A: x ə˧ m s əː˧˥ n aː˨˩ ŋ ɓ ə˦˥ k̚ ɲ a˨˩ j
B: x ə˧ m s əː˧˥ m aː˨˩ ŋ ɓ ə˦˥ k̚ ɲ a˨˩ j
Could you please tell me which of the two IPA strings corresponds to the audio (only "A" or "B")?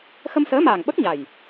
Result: B